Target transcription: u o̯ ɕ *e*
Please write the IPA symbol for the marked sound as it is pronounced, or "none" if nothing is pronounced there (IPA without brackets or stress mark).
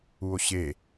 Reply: e